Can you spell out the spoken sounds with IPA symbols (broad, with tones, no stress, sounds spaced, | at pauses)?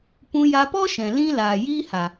p ũ˧ j a˧ p ɔ˦ ʃ ɛ̃˨ l ĩ˦ l aː˨ j iː˦ h a˨